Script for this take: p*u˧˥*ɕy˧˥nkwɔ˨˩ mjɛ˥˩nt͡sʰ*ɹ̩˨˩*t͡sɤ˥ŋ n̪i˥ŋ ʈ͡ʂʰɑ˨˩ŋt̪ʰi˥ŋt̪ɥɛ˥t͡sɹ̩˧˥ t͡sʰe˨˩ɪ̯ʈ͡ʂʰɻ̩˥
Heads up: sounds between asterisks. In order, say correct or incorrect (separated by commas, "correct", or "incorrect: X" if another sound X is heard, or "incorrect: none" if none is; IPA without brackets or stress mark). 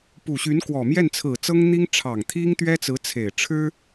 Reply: incorrect: u˨˩, correct